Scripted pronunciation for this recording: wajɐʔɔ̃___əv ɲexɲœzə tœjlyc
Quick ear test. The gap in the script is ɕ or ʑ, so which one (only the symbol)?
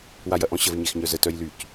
ɕ